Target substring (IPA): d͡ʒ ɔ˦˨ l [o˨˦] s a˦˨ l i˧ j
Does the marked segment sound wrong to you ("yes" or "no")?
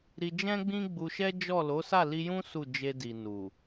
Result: no